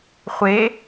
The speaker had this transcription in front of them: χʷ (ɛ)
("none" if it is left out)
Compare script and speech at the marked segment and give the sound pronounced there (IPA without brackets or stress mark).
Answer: e